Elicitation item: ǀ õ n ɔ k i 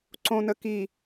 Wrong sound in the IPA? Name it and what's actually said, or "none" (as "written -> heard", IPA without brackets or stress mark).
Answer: ɔ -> ə